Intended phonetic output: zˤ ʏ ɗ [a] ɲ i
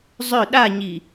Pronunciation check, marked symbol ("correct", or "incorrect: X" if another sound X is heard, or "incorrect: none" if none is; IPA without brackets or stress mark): correct